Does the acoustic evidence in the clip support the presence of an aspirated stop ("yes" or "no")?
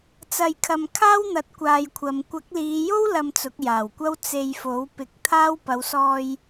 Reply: yes